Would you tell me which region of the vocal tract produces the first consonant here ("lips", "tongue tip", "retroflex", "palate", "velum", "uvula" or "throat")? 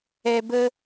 lips